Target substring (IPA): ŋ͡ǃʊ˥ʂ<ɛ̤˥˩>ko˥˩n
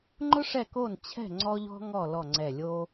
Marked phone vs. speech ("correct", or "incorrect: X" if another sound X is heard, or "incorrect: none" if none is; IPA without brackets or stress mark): incorrect: ɛ˥˩